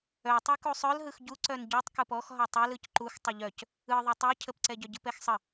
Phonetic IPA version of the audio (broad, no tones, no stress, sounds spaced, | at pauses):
œ tˤ ɛ k u sˤ œ l ɦ ɯ x ɟ u ǀ œ n ɟ u tˤ k ɯ p ɔ x ɦ ɔ tˤ ɛ l ɯ c ǃ u x tˤ ə ʎ œ c | ɯ ðˤ œ tˤ ɛ cʰ ə p ǀ ɛ ɟ œ ɟ ɯ p ɛ x sˤ ə